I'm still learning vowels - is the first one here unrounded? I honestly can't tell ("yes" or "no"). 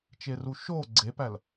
yes